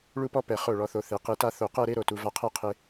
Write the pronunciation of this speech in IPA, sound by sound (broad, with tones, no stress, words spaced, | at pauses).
ɭu˥˧pɔ˥ pɛ˧˩ χo˧˩ɭɔ˩˧θo˩˧ θe˩˧qe˧ta˥˧ θo˧˩qɛ˥˧ɾe˥ ɾo˧˩tu˩˧va˧qʰɛ˥˧ qʰe˧